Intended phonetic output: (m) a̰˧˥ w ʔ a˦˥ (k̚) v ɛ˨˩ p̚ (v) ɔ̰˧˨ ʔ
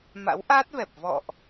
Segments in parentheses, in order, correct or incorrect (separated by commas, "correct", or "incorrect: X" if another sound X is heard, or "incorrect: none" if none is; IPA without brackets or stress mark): correct, incorrect: t̚, correct